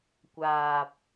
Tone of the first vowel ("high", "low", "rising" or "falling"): low